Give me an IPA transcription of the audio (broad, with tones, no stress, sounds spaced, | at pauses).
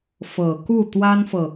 f ɤ˨˩ k u˥˩ t̪ w a˥ n f ɤ˨